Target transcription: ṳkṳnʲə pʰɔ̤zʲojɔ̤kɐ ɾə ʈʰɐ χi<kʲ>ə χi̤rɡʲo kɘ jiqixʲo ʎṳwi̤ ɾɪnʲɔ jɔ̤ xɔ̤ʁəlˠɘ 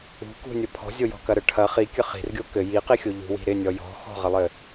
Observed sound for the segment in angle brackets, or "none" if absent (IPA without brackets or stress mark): kʲ